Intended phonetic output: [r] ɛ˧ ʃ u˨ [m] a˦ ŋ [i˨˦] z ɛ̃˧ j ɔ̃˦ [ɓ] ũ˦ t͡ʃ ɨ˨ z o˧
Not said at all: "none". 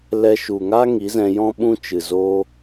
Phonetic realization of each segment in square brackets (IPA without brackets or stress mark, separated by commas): l, ŋ, i˨˦, ɓ